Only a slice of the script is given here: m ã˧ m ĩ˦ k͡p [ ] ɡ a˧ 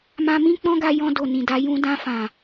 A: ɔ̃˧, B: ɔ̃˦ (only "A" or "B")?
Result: B